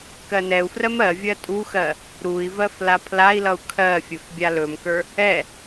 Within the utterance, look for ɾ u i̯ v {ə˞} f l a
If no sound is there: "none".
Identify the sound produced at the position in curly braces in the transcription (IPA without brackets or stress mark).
ɜ